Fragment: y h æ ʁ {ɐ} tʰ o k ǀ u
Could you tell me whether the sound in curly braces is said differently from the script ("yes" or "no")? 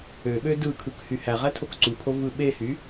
yes